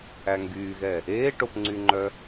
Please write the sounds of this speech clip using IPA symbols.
æ ŋ ɡ yː ɣ ɛ | eː ʈ o p ŋ͡ǀ y ŋ͡ǃ œ

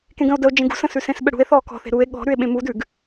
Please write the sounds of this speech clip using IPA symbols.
k ẽ ɡ ə̃ o̯ d ə o̯ d͡ʒ ẽ ɡ ṳ s ə̃ s ʉ s ẽ s ɓ ə ɽ ṳ e̯ θ ɔː k ɔ̤ θ e̤ ɾ u e̯ ɠ ɔ̤ ɾ ʉ e̯ ɓ ẽ m u d ʉ ɡ

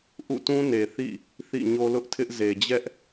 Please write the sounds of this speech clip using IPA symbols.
ʔ ṵ˦˨ t ũ˦ n e˨ θ ḭ˦˨ | θ ḭ˦˨ ɲ o˦ l ʊ˦ ʔ tʰ ɪ˦ ʔ z e˨ d͡ʑ ɛ˦ ʔ

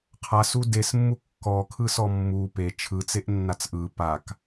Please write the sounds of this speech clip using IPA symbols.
qʰ a s u d e s mː u kː ɔ kʰ ɯ s ɔ mː u p e t͡ʃʰ ɯ t͡s e ʔ nː a t͡s ʔ ɯ p a k

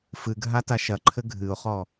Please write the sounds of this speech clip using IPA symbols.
f ɨ ɡʱ a t a ʃ ɐ ǃʰ ɘ ɡʱ ɨ ʊ̯ χ ɔ

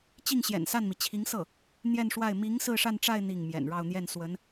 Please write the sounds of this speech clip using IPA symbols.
t͡ɕ i˥˩ ŋ ɕ j ɛ̰˨˩ n s a˥˩ n m i˩ t͡ɕʰ i˧˥ ŋ s ɤ˥˩ | n̪ j ɛ˥˧ n ʂ w a˥˩ ɪ̯ m i˧˥ ŋ s ɹ̩˥˧ ʂ a˥˧ n ʈ͡ʂ a˥˧ ɪ̯ n̪ i˥˩ ŋ m j ɛ̰˨˩ n ɻ ɑ˥˧ ʊ̯ n̪ j ɛ˥˩ n s w ə˧˥ n

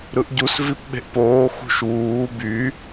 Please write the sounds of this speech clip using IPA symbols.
ɾ ɯ ʔ ɟ u s v i p ɓ e̤ ʔ p oː x ṳ ʃ w uː b y

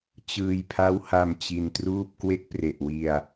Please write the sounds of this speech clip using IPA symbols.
t͡ɕ ɯː˧ j pʰ a˦˥ w h a˧ m t͡ɕ i˧ n t r uː˥˩ p̚ k w e˦˥ k̚ p r e˨˩ ʔ w i˧ a̯

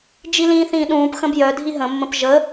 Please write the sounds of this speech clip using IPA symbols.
d͡ʒ i l ĩː θ ĩː ɗ ũː p x ə̃ b j œ dʱ i ɦ ə̃ mː ə̃ p ʒ ə

